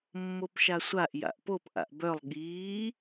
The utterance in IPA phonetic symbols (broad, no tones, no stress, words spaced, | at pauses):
mːopʃasʷaʔ ja̰ʔpop ʔa̰ʔbœlˠ ɠiː